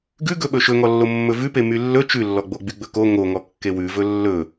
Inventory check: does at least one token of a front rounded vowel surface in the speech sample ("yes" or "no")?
yes